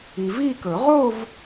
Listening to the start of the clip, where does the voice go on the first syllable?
low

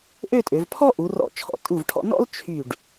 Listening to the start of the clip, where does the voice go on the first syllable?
falling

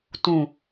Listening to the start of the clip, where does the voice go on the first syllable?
low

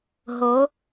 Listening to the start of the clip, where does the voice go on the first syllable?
rising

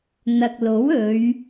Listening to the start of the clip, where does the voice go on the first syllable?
low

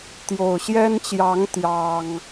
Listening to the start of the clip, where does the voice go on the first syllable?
low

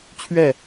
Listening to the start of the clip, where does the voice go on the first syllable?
falling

